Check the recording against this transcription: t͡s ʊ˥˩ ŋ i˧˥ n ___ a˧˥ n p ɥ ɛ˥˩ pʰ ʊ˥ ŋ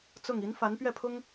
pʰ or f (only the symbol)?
f